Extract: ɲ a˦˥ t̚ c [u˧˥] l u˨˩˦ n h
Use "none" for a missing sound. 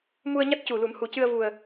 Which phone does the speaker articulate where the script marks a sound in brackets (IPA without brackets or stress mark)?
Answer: u˨˩